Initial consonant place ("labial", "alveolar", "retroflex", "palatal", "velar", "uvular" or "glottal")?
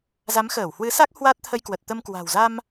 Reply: alveolar